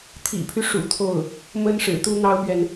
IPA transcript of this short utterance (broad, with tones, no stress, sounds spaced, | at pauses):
t̪ʰ ḭ˨˩ pʰ y˦ ʂ ṵ˨˩ t̪ʰ o˥˩ ʊ̯ | m ə˥ n ʂ ɻ̩˨˩ t̪ u˥ n̪ ɑ˥ ʊ̯ p ɥ ɛ˨ n